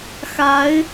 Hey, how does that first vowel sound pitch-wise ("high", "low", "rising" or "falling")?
rising